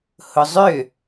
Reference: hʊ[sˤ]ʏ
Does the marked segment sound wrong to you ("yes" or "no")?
yes